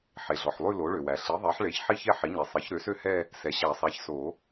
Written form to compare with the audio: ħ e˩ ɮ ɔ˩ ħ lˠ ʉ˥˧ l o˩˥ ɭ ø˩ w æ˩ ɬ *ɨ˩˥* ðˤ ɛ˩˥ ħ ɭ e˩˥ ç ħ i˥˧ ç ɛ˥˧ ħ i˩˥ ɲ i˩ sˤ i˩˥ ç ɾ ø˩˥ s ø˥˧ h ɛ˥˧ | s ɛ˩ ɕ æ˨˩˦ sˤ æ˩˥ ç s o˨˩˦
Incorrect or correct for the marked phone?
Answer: incorrect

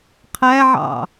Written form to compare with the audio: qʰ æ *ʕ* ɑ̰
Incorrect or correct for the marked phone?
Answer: correct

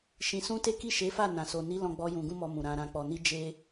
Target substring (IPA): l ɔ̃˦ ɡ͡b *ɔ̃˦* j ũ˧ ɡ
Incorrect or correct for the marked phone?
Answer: incorrect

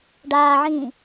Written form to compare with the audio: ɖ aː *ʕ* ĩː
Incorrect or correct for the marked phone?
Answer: correct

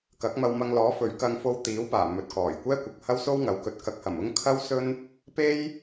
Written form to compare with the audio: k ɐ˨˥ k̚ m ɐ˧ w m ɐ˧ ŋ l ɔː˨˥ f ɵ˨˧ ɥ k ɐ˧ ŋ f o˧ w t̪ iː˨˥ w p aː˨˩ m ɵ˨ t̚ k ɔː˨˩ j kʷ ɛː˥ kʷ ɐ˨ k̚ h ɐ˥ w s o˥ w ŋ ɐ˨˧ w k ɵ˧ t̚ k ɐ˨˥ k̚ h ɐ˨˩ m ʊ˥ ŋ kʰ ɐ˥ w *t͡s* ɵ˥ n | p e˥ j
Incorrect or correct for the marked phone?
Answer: incorrect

